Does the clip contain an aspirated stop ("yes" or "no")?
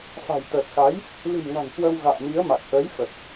no